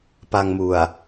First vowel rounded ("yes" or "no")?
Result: no